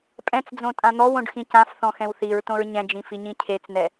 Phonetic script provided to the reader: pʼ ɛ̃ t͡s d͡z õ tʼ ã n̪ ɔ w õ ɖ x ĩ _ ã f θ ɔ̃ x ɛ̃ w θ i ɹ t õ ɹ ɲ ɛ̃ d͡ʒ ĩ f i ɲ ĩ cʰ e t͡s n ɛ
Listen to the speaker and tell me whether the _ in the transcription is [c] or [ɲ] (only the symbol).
c